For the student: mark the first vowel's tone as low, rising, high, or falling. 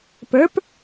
rising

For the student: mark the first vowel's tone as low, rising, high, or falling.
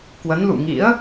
rising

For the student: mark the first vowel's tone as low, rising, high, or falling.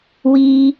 high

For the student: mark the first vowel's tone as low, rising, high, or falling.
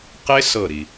high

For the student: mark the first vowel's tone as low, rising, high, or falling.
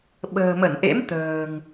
low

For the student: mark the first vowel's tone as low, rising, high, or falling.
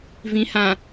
low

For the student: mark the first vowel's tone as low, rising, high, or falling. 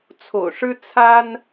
low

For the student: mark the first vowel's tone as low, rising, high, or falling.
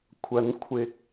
rising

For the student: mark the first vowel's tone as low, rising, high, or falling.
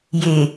low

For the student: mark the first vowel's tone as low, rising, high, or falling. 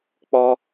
high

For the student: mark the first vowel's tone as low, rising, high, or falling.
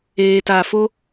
low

